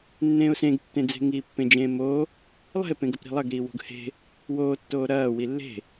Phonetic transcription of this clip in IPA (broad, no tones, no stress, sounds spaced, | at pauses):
nː ẽː ʊ̯ s ẽ ɡ tː ẽ d͡z e̤ ŋ iː pː ẽ d͡ʒ ẽː m oː | lˠ ɛ̤ ɪ̯ p ẽ ɡ ɐ p ɾ i̤ lˠ ɐ ɡ ɾ iː w o̤ ɡ h e̤ | w oː tː oː ɾ ɐː w i lː e̤